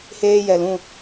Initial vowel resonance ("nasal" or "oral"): oral